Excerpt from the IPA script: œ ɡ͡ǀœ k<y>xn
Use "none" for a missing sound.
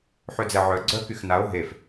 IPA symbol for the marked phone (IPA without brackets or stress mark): y